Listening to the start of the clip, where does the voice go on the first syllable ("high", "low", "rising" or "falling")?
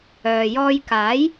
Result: low